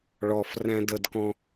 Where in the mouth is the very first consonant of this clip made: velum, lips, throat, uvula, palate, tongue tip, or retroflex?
retroflex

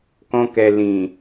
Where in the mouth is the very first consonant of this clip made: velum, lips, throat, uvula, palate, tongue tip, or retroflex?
velum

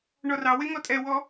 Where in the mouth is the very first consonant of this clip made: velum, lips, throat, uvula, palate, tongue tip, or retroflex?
retroflex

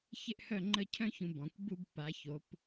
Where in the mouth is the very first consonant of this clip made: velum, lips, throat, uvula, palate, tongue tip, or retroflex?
palate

